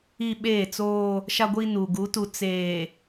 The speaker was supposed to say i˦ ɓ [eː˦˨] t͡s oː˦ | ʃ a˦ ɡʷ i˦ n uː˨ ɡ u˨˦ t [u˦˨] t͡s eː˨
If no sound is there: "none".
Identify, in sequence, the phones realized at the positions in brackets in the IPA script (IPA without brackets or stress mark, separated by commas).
eː˦˨, u˨